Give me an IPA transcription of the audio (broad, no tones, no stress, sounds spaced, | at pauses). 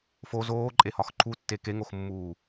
f o z oː ǃʼ e h ɒ x ǃʰ u tː e k e ŋ o x mː uː